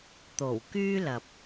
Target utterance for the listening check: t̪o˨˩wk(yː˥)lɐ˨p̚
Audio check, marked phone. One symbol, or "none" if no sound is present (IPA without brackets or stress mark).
yː˥